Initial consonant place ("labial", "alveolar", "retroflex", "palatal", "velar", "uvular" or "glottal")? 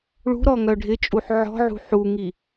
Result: retroflex